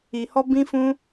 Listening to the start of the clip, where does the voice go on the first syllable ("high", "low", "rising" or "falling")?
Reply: low